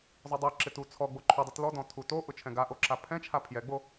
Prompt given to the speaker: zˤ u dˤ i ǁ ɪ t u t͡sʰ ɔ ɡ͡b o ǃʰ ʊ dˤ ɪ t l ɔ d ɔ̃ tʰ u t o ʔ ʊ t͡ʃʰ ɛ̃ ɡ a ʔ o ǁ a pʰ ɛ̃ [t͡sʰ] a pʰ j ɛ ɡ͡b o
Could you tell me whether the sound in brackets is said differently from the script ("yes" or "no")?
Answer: yes